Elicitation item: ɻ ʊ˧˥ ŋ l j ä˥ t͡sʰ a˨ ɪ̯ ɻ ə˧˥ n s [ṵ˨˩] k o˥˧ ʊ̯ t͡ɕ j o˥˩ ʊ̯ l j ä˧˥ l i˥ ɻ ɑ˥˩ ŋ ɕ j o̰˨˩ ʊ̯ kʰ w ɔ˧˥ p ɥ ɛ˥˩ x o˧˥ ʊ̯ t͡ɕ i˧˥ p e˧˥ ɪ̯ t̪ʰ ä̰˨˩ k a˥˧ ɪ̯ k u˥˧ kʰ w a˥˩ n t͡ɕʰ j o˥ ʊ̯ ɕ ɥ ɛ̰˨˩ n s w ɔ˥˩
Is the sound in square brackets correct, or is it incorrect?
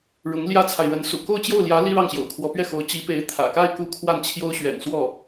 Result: correct